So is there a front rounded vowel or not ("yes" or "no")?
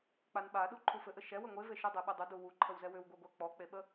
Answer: yes